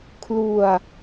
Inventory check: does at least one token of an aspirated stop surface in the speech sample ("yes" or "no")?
yes